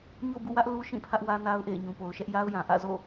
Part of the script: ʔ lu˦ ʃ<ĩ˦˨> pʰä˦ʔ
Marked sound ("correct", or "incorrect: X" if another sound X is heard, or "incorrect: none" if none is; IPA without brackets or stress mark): correct